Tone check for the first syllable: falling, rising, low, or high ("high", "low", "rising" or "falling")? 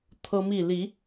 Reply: high